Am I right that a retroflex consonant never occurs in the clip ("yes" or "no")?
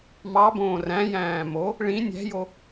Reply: no